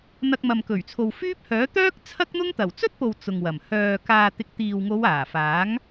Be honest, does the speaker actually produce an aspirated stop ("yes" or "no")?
yes